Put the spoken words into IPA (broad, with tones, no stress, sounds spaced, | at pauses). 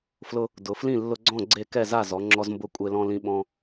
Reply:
f l ʊ˦ | d ʊ˩˧ f l ĩ˥˨ lː ʊ˦ ɡ͡ǀ ɔ̃˥˨ ɡ͡ǀ e˥˨ k ɛ˥˨ z a˥˨ z ɔ˩˧ ŋ͡ǁ ɔ˦ z m b ʊ˥˨ kʷʼ e˦ l ɔ̃˦ l ĩ˦ ɓ ɔ̃˦